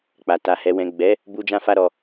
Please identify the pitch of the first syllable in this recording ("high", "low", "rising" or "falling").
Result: low